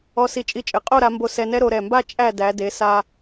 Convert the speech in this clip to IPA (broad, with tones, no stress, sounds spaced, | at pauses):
ɔ˧ s i˧˩ t͡ʃʼ i˧ t͡ʃʼ ɘ˩˧ qʼ o˥˧ ɾ a˩˧ m b o˧˩ s ɛ˧ n ɛ˥ ɾ o˩˧ ɾ ɛ˧˩ m b a˥˧ t͡ʃʼ æ˥˧ d æ˩˧ d e˩˧ s a˧